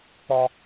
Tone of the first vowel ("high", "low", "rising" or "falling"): high